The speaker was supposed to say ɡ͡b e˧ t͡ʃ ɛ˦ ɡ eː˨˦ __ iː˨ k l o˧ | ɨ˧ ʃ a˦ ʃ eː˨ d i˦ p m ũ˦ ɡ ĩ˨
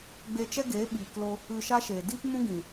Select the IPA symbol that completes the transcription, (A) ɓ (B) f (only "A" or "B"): A